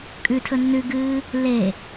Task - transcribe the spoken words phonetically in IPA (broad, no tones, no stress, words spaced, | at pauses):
kʼʉtʰɵ nːʉɡɨː | le